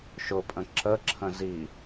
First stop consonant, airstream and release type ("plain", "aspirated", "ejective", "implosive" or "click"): ejective